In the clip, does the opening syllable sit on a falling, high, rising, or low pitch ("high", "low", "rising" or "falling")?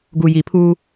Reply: low